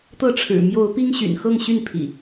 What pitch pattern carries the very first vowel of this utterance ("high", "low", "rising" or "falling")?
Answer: falling